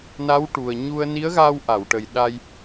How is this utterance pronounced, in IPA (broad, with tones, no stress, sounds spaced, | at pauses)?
n a˧˥ w ʈ u˨˩ ə̯ ɲ u˧ ə̯ n i˧˥ ə̯ ɣ aː˧ w ʔ a˨˩˨ w ʈ ə˨˩ j ɗ a˧ j